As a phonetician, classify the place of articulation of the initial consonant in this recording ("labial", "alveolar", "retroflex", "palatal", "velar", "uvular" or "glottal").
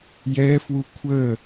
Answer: palatal